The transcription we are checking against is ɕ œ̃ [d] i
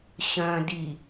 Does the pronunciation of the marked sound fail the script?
no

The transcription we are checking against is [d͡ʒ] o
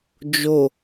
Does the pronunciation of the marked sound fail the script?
no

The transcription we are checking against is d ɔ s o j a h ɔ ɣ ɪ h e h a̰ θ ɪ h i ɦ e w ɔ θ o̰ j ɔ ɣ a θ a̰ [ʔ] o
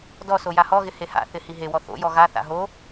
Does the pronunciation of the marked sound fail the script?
yes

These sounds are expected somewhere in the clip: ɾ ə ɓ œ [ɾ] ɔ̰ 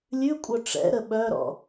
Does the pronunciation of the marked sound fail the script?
no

